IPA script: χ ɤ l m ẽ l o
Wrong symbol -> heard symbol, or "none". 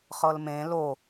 none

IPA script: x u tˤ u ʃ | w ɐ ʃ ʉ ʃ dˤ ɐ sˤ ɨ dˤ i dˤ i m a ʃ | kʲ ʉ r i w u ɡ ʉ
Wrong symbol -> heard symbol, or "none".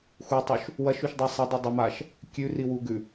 none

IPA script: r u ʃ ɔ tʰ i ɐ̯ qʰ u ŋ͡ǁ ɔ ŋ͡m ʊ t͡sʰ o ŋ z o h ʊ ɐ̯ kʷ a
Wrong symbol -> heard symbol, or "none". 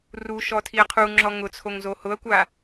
ŋ͡m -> ŋ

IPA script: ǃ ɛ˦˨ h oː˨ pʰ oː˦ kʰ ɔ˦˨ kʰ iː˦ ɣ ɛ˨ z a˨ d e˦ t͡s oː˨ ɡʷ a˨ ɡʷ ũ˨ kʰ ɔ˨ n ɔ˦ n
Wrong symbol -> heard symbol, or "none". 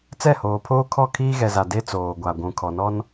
ǃ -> t͡s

